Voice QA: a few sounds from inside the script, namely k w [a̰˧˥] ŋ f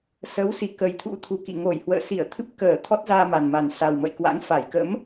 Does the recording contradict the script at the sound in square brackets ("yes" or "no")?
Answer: no